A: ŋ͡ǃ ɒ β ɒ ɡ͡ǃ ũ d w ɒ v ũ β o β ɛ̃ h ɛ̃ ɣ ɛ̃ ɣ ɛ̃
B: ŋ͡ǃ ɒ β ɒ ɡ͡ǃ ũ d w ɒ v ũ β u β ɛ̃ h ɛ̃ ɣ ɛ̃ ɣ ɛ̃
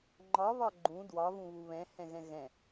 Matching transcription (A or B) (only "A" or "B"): B